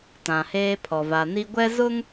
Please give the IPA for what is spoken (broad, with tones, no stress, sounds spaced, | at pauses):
t ã˨ h eː˦ pʰ ɔ˨ v a˨ n i˦ ɡʷ ɛ˦ z ʊ˦ ŋ